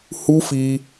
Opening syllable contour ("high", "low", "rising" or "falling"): high